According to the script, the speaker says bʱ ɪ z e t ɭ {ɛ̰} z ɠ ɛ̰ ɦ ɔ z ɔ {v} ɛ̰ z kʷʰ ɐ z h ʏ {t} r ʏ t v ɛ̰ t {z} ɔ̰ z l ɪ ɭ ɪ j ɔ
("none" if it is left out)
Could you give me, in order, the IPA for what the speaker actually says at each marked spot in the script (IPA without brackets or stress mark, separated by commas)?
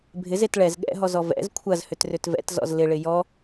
ɛ, v, t, z